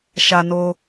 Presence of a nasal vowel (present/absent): absent